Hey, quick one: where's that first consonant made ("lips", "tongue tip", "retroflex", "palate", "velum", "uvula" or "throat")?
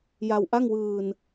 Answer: palate